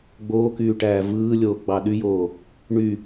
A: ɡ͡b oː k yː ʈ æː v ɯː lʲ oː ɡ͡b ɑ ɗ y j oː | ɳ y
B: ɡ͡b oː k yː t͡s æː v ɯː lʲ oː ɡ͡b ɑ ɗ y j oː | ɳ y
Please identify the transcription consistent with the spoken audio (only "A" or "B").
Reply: A